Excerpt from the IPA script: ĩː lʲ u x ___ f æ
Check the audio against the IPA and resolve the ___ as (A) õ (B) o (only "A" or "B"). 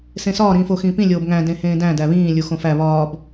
A